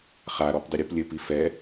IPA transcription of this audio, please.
χ a ɾ ɔ p dˤ y ɾʲ u p lʲ ɘ p i f ɛ

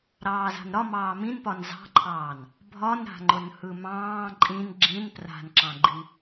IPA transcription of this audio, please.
ɾ ɑː z a̤ n ɾ ɒ m ɑː m ĩ n p ɒ n z ɑ̤ ǃʰ ɑː n | bʱ ɒ n ɾ a̤ ŋ͡ǃ ʊ n h ɯ m ɑ̃ː ǃʼ ĩ n ɡ͡ǁ ĩ n p r a̤ n ǁ ɑ̃ ɡ͡ǃ i

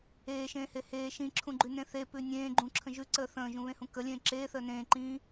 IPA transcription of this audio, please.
eː ʃ ẽː h e h eː ʃ ĩ ǁʰ ũ ɡ͡ǃ ʉ n ẽ θ e p ʉ nʲ ẽː ɡ͡ǃ ũ ǁʰ ə̃ ʒ ʉ ǀ əː θ ə̃ː ʒ ũ β ẽ h ũ k ə lʲ ẽː ǁ eː θ əː n ẽː ǃ ĩː

